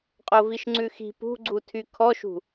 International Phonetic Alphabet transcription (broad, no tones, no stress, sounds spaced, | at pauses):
qʼ o v i ʃ ŋ͡ǀ ʉ x i̤ p ṳ ɡ͡ǀ u tʰ y kʰ ɔ ʃ ṳ